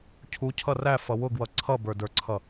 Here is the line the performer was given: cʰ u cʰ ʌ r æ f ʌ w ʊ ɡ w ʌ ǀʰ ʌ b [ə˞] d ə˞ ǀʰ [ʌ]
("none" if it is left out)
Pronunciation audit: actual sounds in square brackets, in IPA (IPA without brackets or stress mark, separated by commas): ə˞, ʌ